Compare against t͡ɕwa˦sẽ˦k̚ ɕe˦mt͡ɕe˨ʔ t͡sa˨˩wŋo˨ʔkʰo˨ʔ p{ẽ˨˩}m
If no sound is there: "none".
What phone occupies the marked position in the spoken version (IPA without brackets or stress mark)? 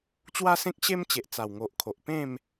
ẽ˥˧